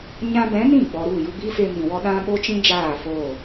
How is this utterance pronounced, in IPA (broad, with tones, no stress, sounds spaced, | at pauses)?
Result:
ɲ ã˧ b ɛ̃˨˦ n ĩ˦˨ ɡ͡b ɔ˨ ɾ u˦˨ j u˧ b i˦ f e˧ m ĩ˨ w ɔ˦ ɗ ã˦ ɓ o˦ t͡ʃ ĩ˦ d͡ʒ aː˦˨ f oː˦˨